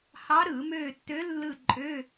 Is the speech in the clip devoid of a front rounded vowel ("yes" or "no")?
no